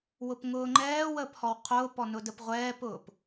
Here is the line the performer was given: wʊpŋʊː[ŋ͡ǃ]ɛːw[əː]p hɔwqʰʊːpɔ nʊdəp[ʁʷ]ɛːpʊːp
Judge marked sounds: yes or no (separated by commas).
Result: yes, yes, yes